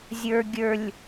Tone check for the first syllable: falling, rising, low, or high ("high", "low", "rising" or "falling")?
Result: low